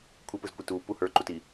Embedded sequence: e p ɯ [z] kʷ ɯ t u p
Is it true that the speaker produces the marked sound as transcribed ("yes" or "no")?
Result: yes